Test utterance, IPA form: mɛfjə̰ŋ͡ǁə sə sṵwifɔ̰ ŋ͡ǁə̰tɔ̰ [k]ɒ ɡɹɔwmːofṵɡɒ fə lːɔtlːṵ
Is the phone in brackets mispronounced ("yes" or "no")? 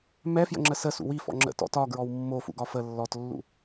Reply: yes